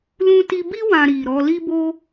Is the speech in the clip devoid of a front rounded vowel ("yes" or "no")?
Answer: yes